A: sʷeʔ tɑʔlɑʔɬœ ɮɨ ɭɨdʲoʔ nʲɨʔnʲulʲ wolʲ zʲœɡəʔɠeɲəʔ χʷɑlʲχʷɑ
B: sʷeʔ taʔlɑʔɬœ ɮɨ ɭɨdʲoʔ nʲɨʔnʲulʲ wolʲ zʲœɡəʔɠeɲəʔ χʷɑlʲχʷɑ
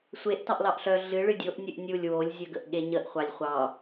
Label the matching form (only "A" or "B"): A